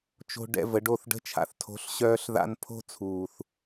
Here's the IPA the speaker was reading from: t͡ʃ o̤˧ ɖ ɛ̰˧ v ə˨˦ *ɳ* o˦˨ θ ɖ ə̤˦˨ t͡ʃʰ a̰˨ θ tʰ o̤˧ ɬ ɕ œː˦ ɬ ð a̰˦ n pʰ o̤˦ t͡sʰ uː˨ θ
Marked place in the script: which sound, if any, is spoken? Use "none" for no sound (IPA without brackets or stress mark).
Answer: ɖ